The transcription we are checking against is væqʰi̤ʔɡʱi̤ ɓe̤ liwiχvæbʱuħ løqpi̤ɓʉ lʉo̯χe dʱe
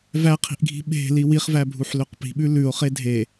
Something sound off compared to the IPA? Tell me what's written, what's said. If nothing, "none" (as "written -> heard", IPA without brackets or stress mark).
none